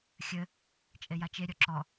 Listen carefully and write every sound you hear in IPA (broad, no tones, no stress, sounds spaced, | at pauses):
xʲ ɘ | t͡ʃʼ e j a t͡ʃ e ɾʲ ɔ ǁ ɔ